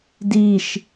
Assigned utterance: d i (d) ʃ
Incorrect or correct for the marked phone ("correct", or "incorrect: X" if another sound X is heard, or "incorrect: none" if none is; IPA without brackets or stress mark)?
incorrect: none